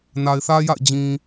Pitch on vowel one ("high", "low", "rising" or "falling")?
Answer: low